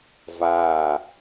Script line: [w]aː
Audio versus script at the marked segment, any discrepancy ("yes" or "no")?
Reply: yes